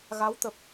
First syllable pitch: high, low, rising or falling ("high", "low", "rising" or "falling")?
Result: rising